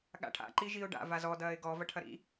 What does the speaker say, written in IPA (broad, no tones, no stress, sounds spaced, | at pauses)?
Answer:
ɠ a̰ ʈʰ a̰ ǃ i ʒ i ʊ̯ ɖ a̰ v a z ɔ d ɐː ɪ̯ ɡ ɔ v ɐ ʈʰ ɐ ɾ ḭ